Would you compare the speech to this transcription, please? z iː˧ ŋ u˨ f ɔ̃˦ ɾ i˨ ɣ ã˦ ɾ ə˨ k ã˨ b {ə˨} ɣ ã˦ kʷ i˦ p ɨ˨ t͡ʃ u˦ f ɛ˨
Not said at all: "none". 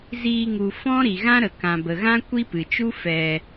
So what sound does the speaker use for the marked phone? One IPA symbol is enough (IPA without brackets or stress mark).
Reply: ə˨